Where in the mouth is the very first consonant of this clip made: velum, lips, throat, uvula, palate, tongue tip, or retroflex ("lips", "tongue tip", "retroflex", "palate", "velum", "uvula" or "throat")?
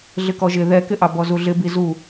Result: tongue tip